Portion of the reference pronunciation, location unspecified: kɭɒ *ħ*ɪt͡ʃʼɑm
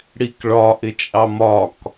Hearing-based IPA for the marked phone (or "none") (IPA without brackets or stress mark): ʔ